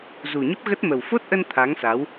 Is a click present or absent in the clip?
absent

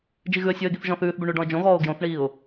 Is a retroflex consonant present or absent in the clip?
present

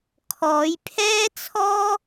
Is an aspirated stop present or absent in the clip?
present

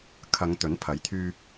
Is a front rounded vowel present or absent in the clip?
present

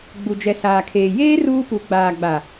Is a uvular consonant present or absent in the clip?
absent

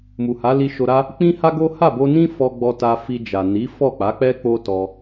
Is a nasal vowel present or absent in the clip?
present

